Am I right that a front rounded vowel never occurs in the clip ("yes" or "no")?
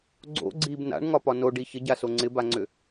no